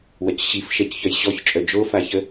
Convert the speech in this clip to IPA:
w ɐ c ɕ i f ʃ ɛ c ç œ j ɕ ɔ ç t͡ʃʼ œ d͡ʒ o f a ç ə

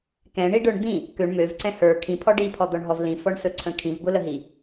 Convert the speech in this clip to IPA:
k ɛ̃ ɳ i ɖ ə˞ ɳ d̪ ĩ | k ø ɳ m ø v ǀ ɛ̃ h ə˞ kʰ ĩ pʰ ɔ ɖ i pʰ ɔ d̪ ɔ ɳ ɦ ɔ v l ĩ f ɔ ɳ s ɵ ǀʰ ə̃ kʰ ĩ v b ʊ l ə ɦ i

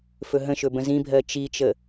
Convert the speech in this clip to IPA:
f ɵ ɦ ə̃ ʃ ɵ b ə̃ z ĩ bʱ ɜ t͡ʃ i t͡ʃ ə

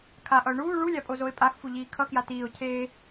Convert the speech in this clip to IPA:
kʰ a ʔ ʌ ʊ̯ ɳ uː ɭ u lʲ a pʼ o z o ɪ̯ pʼ a x f u ʎ iː kʰ ʌ k j a t iː ʊ̯ cʰ eː

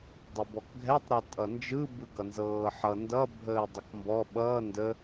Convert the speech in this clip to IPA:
dˤ ə b ɔ k ɡʱ ɛ tˤ ɾ ɤ tʼ ʌ n d͡ʒ ɯ b ɯ ɡ ʌ n z ɤː ħ ʌ n d ʌ bʱ əː dˤ ə k m b ɔ ɓ ʌː n d ə

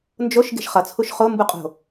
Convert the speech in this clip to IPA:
n d͡ʒ o ʃ ɡ e̤ ʃ χ ʌ t͡sʰ u ʃ χ o m b u qʼ o̤

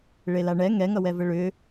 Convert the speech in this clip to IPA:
ɭ e l a ɳ ɛ ŋ ɛ ŋ ʌ w ɛ v ə ɭ ʏ

